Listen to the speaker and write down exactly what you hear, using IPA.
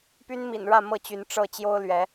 p y˦ n m ḭ˨˩ n ɻ ä˥˨ m ɤ˥˨ t͡ɕ y˨˦ n ʈ͡ʂ ɤ˥˨ t͡ɕ j o˦ ʊ̯ l ɥ ɛ˨˦

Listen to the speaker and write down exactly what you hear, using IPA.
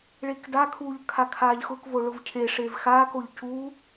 ɭ e k d a kʰ uː ʎ kʰ a kʰ aː ʎ x ʊ k v o ɭ ʊ v cʰ e ʂ e v x aː k o ʎ c u

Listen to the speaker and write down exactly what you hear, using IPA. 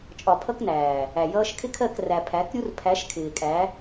t͡ʃʼ ɒ˨ pʰ ʌ˧ k n æː˨ | æ˨ j ʌː˧ ʃ kʰ ɪ˦ kʰ ɜ˦˨ k r æ˨ pʰ æ˨˦ k ɾʲ u˦ r pʰ æ˨˦ ʃ kʰ ɪː˨ kʼ æ˨˦

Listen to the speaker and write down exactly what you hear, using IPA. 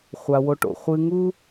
χʷ a˩ w o˨ ʈ o̰˩ χʷ ɨ˨ ŋ u˥

